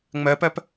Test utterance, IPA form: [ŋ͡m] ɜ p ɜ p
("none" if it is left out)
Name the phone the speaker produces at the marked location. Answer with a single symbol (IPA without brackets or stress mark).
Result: ŋ͡m